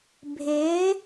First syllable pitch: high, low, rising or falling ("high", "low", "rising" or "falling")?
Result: rising